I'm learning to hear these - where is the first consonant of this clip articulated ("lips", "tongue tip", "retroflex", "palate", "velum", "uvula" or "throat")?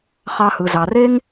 uvula